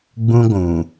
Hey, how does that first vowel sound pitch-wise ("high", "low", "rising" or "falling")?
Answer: high